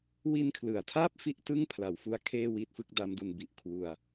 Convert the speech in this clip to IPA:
wi˧nkʰlɯ˩˦a̯tʰaː˥˩p̚ fi˥˩ʔtɯ˥˩ŋpʰla˩˦wfu˦˥a̯ kʰeː˥˩wiː˥˩t̚fɯ˥˩k̚ da˦˥mdu˧nbi˨˩ʔ kʰwu˧a̯

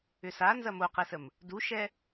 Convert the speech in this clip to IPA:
ʏsa nzɐmoqesəm | duʃɛ

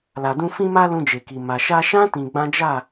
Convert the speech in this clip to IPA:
la˨dũ˧ fĩ˧ma˧ lũ˧d͡ʒe˨ki˨ ma˨ ʃa˧ʃã˦ tĩ˧ɡ͡bã˦ d͡ʒa˦˨

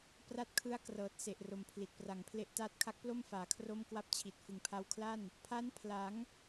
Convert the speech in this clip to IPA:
pra˦˥t̚kʰɯ˦˥a̯ krɤː˨˩t̚se˨˩ʔro˩˦m pʰli˨˩t̚pra˨˩ŋpʰle˦˥ʔ taː˦˥t̚kʰa˦˥k̚plo˥˩mfaː˩˦ kʰro˥˩mkwa˥˩p̚t͡ɕʰi˨˩t̚ fɯ˨˩ŋpʰa˧wkʰla˥˩n | pʰa˦˥npʰla˩˦ŋ

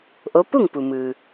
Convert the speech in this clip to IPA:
ʔo˧˥ pu˥˨ŋpu˩mɯː˩

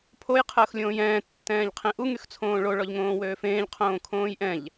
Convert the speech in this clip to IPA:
pʰoj qʰəːxlʲõːjɛ̃ː tːɛ̃ːʎqʰẽʔu ŋyxt͡sʰõːɭo ɭɔʎŋõːwøːfẽːʎ qʰõːkʰõːjʔɛ̃ʎ

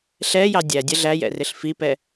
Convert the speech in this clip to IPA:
ɬɛjɑ dʲæ dʲɜɮæjɛ̰ rɪɬfipɛ

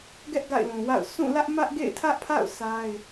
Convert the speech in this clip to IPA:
ɡɛ˦ʔ ɡa̰˦˨ɪ̯lũ˨wa̰˦˨ʊ̯ sũ˦˨lä˦ʔ mä˦ʔɡḛ˦˨ɪ̯tʰä˦ʔpʰa̰˦˨ʊ̯ sa˦ɪ̯

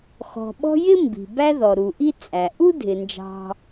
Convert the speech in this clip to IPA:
xɔ̤˩ɓɔ̤˦jɪ˥ mbi̤˩bæ˦ðɔ˩ ɾu˩ʔi˥t͡sʼæ˩ ʔu˥dʱɪ˩nd͡ʒɑ̤˨

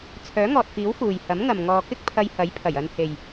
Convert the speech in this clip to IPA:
t͡sʰœː˨˥ŋɔː˨t̚fiː˨˥w fuː˨j hɐ˨˥mŋɐ˨m ŋɔː˨kɪ˥k̚ pʰɐ˧jhɐ˨˥jpʰɐ˨˩j ɐ˧n he˨j

